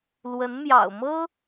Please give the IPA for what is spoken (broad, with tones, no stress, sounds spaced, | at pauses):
l w ə˧˥ n m j ɑ̰˨˩ ʊ̯ m ɤ˥